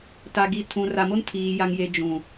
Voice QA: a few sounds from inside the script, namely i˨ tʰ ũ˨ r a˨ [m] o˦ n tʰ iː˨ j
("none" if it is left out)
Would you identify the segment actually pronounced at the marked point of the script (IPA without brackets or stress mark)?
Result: m